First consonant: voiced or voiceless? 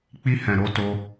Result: voiceless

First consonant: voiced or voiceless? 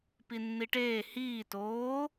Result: voiceless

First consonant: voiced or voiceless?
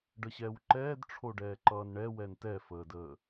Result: voiced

